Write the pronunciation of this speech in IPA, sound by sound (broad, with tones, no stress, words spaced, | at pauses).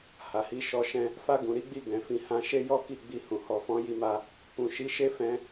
ha˨hi˧ʃɔ˧ʃɛ̃˦ | fa˧ɡũ˨ɾi˨˦ɡ͡bi˧ ɡɛ̃˨fĩ˨˦hã˧ ʃe˦jɔ˦ ki˦˨ɡ͡bi˧hũ˨ hɔ˨fɔ̃˨˦ji˧ma˧ | kũ˨ʃi˨˦ʃe˦ fɛ̃˦